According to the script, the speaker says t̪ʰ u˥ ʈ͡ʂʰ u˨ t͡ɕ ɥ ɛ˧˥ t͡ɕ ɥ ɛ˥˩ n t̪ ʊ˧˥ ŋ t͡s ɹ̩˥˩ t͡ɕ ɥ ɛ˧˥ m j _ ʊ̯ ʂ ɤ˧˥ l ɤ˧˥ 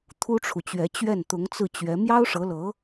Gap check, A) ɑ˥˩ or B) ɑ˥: B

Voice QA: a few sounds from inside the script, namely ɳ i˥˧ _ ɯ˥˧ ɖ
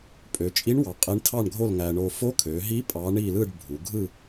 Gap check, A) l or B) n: A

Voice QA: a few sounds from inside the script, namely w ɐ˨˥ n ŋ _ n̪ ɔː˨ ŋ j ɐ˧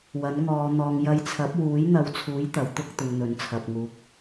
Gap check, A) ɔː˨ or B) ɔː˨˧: B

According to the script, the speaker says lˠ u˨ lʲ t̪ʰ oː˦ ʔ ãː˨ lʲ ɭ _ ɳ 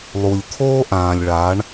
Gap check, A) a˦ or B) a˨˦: B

